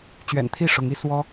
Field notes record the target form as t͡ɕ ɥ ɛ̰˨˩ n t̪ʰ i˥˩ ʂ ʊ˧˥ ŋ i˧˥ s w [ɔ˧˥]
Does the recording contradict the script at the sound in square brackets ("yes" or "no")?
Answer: yes